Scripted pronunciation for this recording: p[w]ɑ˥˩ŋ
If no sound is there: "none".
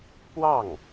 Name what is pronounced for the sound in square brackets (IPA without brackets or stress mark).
w